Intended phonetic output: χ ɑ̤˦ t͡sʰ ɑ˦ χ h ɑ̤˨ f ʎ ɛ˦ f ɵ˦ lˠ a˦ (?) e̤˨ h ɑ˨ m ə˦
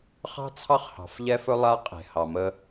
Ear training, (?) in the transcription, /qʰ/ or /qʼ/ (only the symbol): qʼ